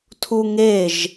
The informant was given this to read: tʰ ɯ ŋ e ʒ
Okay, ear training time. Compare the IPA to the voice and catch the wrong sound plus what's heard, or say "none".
ɯ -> u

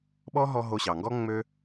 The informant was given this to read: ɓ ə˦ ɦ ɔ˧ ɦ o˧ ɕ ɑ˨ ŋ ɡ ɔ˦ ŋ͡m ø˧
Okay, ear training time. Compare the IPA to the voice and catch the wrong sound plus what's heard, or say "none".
ə˦ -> ɔ˦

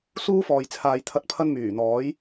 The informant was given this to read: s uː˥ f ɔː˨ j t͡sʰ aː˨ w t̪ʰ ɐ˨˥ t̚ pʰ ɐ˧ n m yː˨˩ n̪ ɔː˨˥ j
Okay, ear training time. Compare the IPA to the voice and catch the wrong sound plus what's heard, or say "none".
w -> j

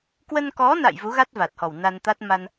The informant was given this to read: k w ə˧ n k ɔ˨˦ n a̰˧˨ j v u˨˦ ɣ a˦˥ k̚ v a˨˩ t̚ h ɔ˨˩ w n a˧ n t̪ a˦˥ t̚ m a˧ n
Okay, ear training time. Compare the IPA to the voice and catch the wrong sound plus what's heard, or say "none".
k̚ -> t̚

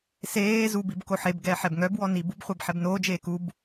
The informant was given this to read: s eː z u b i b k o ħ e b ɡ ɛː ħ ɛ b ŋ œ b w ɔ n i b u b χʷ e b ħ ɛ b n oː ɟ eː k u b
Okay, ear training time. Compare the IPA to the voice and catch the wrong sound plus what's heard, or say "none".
ɟ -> d͡ʒ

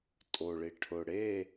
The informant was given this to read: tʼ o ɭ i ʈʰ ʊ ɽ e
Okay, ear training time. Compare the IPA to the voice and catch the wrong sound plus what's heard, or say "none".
none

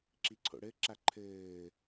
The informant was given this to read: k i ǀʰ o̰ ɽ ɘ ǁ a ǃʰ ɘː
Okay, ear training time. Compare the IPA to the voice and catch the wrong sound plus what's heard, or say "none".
k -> ǁ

